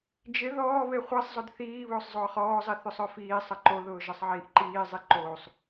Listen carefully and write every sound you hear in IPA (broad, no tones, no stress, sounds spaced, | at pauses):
d͡ʒ ɪ ð ɔː β e χʷ i sˤ zˤ ʊ d θ iː β ʊː sˤ zˤ ʊː χ ɔː zˤ i θ ʏ sˤ œ f iː sˤ ɐ ǃ o ð ʊː ʒ ɐ sˤ ʕ iː ʔ ǃ iː zˤ i ǃ oː sˤ